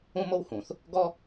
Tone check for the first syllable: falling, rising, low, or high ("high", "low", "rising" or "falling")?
high